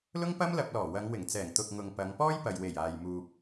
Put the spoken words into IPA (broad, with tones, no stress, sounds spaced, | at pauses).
l ʊ˥ ŋ p ɐ˥ m l ɐ˧ p̚ l ɔː˨˩ w ɐ˨˧ ŋ w ɪ˨˩ ŋ t͡s ɛː˨˩ ŋ t̪ ʊ˨ k̚ ŋ ʊ˨ ŋ p ɐ˨˧ ŋ p ɔː˥ j p ɐ˨ j w e˨˩ j aː˨ j m uː˨ p̚